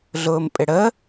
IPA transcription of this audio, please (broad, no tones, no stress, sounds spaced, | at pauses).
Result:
ɮ ʊː m pʼ ɪ ɽ ə